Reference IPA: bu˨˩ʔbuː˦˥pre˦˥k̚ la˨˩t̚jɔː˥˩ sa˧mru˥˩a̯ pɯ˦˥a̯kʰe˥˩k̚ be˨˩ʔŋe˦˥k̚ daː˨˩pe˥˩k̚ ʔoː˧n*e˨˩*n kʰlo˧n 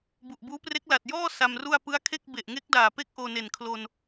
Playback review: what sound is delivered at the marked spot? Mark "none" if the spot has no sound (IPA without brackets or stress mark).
e˨˩